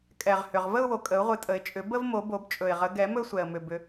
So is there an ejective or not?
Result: yes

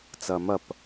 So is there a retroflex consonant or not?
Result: no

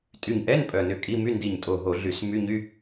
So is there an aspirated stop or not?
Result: no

